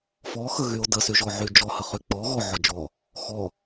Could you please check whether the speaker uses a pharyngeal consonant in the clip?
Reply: yes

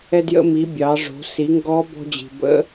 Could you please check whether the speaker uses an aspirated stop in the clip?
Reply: no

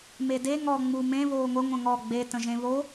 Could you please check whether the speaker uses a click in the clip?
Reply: no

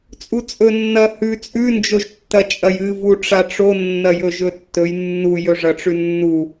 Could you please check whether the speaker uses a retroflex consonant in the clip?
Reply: yes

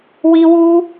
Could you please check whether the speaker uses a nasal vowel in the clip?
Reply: no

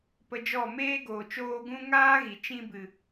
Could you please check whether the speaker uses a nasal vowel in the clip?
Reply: yes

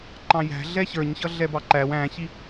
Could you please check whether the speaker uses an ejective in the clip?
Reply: no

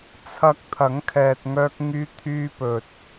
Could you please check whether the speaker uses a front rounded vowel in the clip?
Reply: yes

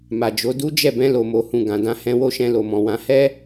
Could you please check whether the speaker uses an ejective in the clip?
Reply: no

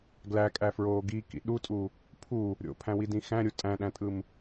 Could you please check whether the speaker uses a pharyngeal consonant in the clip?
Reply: no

